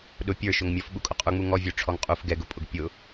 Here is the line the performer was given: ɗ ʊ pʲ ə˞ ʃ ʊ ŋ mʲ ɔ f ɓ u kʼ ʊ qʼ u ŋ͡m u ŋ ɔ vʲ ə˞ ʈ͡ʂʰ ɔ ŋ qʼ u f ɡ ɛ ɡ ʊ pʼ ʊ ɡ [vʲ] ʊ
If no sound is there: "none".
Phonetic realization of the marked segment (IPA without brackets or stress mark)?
pʲ